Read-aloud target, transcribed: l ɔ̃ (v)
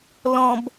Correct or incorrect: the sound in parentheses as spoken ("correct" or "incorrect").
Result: incorrect